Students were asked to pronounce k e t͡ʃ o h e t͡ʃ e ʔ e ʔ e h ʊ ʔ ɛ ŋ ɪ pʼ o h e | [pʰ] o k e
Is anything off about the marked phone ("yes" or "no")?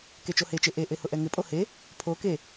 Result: no